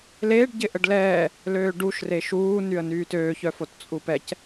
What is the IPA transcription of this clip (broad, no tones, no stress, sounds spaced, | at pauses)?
l eː ɖ ɟ ɪ ʔ ə ɖ l ɛː | l øː ɖ u ʃ r e ʃ uː n y ə̯ n yː t øː ç œ f o t t͡sʼ u p ɛ c